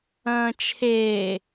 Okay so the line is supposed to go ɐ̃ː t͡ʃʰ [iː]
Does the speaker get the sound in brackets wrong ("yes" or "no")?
yes